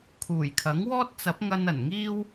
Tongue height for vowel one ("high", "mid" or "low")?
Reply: high